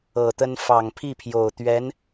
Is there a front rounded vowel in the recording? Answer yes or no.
no